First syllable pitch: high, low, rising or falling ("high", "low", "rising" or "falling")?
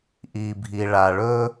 low